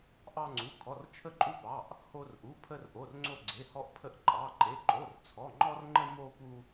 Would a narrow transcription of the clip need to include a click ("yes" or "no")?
yes